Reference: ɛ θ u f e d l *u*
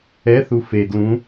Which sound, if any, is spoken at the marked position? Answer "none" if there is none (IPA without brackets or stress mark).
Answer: ũ